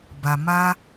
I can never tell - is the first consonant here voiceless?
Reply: no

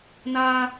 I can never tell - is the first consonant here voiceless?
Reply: no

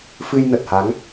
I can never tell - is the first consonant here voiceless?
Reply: yes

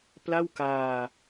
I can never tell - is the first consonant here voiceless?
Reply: yes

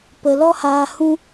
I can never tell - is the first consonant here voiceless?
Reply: yes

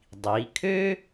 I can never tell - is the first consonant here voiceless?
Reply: no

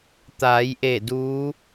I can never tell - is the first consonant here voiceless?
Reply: yes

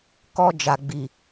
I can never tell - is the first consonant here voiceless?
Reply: yes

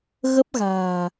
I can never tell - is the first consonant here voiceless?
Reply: no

